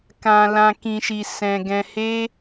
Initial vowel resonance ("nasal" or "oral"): nasal